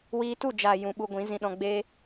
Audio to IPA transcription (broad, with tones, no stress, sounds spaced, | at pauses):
w iː˧ t u˦˨ d͡ʒ a˨ j ũ˧ ɓ u˧ ɡʷ ĩ˨˦ z ĩ˧ ɗ ɔ̃˧ ɡ͡b e˧